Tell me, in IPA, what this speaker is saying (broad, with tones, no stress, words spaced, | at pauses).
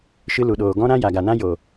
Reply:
ʃɨ˧lu˨ɗoː˨ ɡɔ̃˦ɾã˦ ja˨ɡa˨nã˦ jo˨